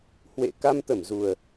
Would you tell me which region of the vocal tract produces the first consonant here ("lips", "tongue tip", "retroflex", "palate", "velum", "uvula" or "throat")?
throat